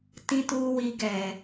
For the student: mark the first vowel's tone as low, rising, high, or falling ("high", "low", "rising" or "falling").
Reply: low